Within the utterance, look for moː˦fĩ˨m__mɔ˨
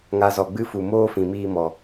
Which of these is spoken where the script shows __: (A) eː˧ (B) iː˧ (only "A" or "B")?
B